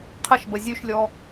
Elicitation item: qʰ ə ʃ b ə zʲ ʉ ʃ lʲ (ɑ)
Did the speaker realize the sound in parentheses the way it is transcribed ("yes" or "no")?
no